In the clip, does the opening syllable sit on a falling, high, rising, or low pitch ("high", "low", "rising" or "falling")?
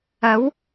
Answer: rising